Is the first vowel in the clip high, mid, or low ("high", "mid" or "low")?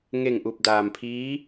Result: mid